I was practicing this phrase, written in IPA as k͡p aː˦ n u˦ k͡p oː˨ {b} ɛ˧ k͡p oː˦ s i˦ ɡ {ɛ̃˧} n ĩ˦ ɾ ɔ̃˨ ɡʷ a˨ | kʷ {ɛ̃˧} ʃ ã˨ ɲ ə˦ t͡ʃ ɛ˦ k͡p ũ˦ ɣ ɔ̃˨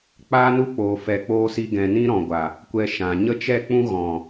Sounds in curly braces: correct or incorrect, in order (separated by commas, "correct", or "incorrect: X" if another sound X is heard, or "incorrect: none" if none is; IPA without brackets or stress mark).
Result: incorrect: f, correct, incorrect: ɛ˧